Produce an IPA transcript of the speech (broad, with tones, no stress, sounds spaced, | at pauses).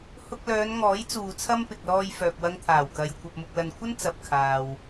h ʊ˧ k̚ l œː˨˧ n ŋ ɔː˨˥ j t͡s uː˨ t͡sʰ ɐ˥ m p ɪ˨ k̚ l ɔː˧ j f œː˨ k̚ w ɐ˧ ŋ t̪ʰ aː˨˩ w k ɐ˨ j kʷʰ ɐ˨ p̚ m ʊ˨ k̚ l ɐ˨ n kʷʰ ɐ˥ n t͡s ɐ˨ p̚ kʰ aː˨ w